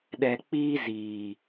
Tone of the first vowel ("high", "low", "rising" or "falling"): low